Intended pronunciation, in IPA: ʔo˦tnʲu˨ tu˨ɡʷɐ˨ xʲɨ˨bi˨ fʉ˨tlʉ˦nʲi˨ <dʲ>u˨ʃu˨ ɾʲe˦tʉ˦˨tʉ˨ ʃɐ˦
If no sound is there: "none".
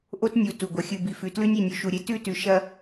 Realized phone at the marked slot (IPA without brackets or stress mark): nʲ